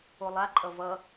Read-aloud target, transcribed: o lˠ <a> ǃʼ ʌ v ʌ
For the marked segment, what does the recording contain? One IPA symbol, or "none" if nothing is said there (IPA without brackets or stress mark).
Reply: a